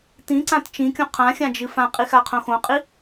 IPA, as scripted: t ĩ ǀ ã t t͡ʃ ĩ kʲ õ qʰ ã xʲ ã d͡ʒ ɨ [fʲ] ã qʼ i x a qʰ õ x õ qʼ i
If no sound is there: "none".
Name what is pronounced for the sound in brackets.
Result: f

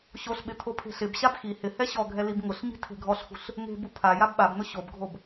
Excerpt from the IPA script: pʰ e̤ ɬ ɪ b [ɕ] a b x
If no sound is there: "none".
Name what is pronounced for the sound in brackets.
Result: ɕ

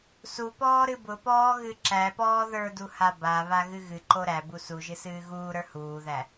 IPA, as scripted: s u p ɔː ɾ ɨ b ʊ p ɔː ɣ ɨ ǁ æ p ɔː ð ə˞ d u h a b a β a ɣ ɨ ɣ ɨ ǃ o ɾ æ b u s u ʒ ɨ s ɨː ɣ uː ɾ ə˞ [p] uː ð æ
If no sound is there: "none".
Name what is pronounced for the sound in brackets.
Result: h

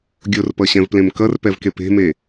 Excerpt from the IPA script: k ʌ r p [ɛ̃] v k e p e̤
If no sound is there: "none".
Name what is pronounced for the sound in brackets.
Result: ɛ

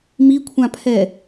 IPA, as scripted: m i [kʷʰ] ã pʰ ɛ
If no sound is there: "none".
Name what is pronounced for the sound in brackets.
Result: kʷʰ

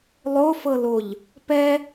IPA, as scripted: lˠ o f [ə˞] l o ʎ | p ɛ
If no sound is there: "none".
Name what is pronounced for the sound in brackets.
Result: ɤ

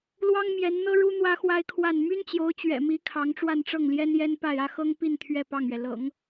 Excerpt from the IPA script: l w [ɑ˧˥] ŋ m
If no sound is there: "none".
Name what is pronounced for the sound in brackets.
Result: ɑ˥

